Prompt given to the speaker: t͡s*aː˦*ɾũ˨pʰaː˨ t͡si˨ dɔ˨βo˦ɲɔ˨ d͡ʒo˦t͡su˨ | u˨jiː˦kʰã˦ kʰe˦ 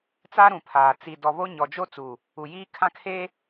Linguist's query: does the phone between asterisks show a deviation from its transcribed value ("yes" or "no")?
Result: yes